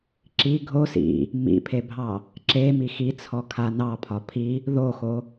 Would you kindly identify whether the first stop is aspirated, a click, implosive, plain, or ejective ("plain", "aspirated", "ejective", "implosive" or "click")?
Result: click